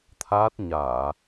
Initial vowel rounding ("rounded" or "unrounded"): unrounded